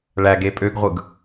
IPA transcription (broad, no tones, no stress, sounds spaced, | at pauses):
ɭ æ ɡ e pʼ ø ɡ ʁʷ ɯ ɡ